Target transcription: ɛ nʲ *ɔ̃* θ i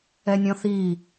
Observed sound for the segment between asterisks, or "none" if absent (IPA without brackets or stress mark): ɔ̃